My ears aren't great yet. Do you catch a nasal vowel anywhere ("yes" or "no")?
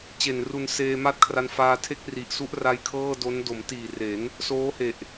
no